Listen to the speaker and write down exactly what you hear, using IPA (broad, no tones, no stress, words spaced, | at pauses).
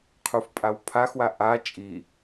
qʰufpʼawpʰaxwa ʔa t͡ʃʼi